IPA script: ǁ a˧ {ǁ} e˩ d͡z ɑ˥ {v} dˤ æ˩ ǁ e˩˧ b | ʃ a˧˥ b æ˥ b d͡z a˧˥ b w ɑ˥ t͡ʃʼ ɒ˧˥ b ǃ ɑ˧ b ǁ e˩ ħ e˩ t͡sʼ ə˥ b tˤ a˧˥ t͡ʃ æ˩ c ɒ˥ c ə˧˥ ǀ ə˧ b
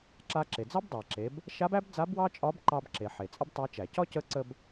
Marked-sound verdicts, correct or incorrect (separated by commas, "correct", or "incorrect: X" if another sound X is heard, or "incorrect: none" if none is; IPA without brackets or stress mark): correct, incorrect: b